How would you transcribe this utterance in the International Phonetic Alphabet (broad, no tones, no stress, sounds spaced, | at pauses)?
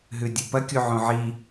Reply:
ɦ ʉ dʲ u p ɐ kʲ u ʕ õ ʕ i